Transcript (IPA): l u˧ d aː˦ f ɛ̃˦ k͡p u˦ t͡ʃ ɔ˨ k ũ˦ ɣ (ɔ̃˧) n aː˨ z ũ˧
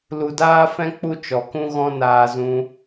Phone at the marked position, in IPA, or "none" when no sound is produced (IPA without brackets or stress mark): ɔ̃˧